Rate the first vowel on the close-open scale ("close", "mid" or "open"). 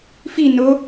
close